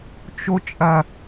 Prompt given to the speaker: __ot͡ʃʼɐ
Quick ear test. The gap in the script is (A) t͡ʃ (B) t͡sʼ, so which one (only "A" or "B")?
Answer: A